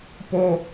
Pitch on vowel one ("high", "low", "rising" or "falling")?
low